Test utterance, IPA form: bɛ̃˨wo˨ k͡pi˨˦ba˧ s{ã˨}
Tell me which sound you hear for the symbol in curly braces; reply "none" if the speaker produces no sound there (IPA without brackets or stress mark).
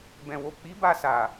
a˨